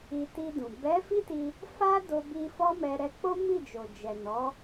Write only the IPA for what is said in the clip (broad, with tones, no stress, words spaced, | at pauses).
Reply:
i˧ti˧dũ˨ bɛ˨˦ fi˦ti˧ | fa˦ do˧bi˧ fɔ˦mɛ˧ ɾɛ˧k͡po˦ mi˦˨d͡ʒo˨d͡ʒɛ˨ nɔ˨˦